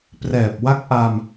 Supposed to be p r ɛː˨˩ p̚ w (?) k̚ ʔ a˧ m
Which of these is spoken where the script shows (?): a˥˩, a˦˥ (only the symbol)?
a˦˥